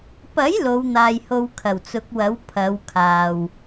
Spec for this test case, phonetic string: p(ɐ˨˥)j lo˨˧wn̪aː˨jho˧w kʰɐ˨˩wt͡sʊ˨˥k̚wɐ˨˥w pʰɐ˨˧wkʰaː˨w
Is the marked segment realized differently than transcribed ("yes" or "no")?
no